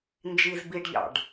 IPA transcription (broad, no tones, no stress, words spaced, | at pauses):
nd͡ʒiz biɖʎɑ̰ɖ